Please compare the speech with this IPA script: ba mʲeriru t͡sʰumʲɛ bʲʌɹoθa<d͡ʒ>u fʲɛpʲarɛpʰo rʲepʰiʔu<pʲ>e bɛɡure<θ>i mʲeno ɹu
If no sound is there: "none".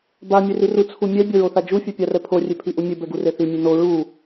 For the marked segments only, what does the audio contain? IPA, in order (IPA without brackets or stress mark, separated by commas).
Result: d͡ʒ, mʲ, θ